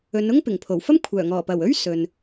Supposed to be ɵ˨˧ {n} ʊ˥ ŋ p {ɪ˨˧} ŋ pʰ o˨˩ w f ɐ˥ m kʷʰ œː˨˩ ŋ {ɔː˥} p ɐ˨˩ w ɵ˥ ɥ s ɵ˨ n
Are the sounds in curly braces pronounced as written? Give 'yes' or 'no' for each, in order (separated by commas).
yes, no, no